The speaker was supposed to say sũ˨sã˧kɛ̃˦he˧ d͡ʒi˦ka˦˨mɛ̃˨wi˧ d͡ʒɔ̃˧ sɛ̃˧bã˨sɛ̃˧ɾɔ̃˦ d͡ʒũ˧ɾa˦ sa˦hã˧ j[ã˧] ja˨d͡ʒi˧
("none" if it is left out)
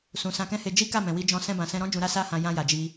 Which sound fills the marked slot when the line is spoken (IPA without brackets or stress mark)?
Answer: ã˧